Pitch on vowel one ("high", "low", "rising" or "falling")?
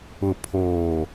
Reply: low